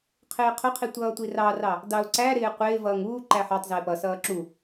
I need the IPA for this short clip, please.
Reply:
qʰ ɪː qʰ ʊ qʰ i tʷ ʌː tʷ i r ɑ r ɑ | d ɑ ʊ̯ ǀ æ ɾ ɪː qʷ ɪː v ʌː ŋ uː ǃ æ ħ ɑ tˤ z ɪː p ʌ s ʌː ǁ u

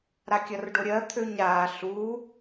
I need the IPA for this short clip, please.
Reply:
ɾ a kʲ ɐ r ɖ o ɾʲ ɜ t̪ʰ ø ɲ ɾ aː ɬ u

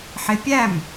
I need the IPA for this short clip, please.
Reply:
ħ ɪ pʲ æ m

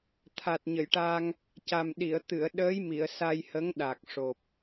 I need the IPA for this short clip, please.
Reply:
t̪ʰ a˨˩ t̚ ɲ ə˨˩˨ j ʈ a˧ ŋ | c a˨˩ m ɗ i˨˩˨ ə̯ t̪ ɨ˨˩˨ ə̯ ɗ əː˧˥ j m i˨˩˨ ə̯ s a˧ j h ə˧˥ ŋ ɗ a˨˩ k̚ ʂ o˨˩ p̚

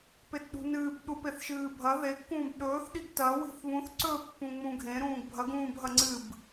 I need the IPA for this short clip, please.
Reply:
p e t ɗ ṳ n ɨː b ɗ u p e θ ʃ ɨː bʱ ɐ ð e kː ũː b ɗ ɵː θ ɗ i ɡ t ɐ w i̤ θ β ũ θ ǀ ɵ pː ũ ŋ͡m ũ ɡʱ ẽ ɾ ũː ɡ bʱ ɐ ɡ ũː b ɦ ɐ ŋ͡ǀ ɨ b

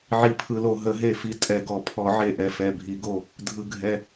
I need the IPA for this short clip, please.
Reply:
ʕ i˨˩ pʰ ɯ˨˩ l o˨˩ ɦ ə˨˩˦ ɦ e˨˩ f i˨˩ tʼ ɛ˨˩ ɡ ɔ˨˩˦ pʰ ɔ˨˩˦ ʕ e˨˩ ʔ ɛ˨˩ f ɛ˨˩ bʱ i˨˩˦ ɡ o˨˩ | dʱ ɯ˨˩ ɡʱ ɛ˨˩

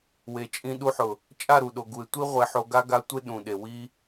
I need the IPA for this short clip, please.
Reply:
w e˨ t͡ʃʼ ĩ˧ ɗ u˧ ħ ʊ˨ | t͡ʃʼ a˦˨ ɾ u˨ ɗ o˨ ɡ u˨ e̯ tʷ i˦ ʁʷ e˧ ħ o˧ ɡ a˧ ɡ a˨˦ tʷ e˧ ɗ ũ˨ ɗ e˨ w i˦

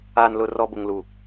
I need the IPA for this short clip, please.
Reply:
aː˨ n l ʊ˨ r ɔ˨ b ʊ˨ ŋ l u˨

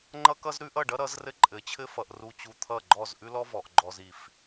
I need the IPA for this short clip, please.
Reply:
ŋ͡ǃ ʌ˦ k ʌ˦ z ɾ ʉ˦ ʔ ʌ˦˨ ɖ ʌ˦ ɾ ʌ˨˦ z r ɘ˦ ǃʼ ɘ˨˦ t͡ɕʰ ɘ˦ f ʌ˨ ʔ r u˨ t͡ɕ u˨ t̪ʰ ʌ˦˨ ɡ͡ǃ ɔ˦˨ z ʔ ʉ˦ l ɔ˦ v ɔ˨ ʔ ɡ͡ǃ ɔ˨ z i˨ f

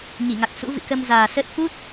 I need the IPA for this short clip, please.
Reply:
ɲ i˧˩ ŋ a˨˩ k̚ s ṵ˧˥ v ɨ̰˧˨ k ə˧ m z aː˨˩ s ə˦˥ t̚ f u˦˥ t̚

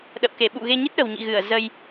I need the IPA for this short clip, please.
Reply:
ɗ ə̰˧˨ w k e˧˩ ɓ ṵ˧˨ ɣ e˧ ɲ i˦˥ t̚ ɗ ə̤˨˩ w ɲ ḭ˧˨ ɣ ɨ˧˩ ə̯ z ə˧ j

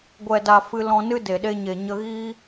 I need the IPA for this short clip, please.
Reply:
ɡʷ ɛ˨ d a˨ f ɨ˧ l ɔ̃˧ n ɨ˦ d e˨ ɗ e˧ ɲ e˨ ɲ ə˧ ɣ iː˦

